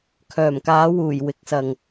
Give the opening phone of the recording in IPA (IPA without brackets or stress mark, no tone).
kʰ